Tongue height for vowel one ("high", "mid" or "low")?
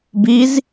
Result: high